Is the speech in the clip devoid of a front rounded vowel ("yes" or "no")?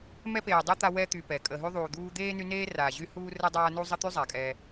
no